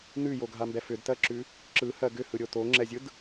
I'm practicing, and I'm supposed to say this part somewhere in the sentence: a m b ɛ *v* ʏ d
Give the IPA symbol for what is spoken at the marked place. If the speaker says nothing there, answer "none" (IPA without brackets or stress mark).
f